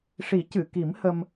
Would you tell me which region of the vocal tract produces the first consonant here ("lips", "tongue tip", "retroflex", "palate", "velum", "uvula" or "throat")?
retroflex